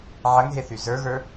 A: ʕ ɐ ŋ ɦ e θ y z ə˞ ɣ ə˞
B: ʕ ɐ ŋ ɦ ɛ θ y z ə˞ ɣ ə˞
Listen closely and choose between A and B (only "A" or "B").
A